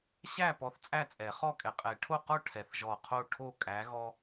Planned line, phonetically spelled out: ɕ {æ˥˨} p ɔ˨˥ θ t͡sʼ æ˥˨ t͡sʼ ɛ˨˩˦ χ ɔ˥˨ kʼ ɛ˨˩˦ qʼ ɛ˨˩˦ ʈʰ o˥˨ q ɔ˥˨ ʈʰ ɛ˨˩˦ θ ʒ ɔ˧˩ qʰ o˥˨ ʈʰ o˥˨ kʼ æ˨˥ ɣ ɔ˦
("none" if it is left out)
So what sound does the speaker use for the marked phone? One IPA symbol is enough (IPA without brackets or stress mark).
æ˥˨